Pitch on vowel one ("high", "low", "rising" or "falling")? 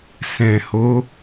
low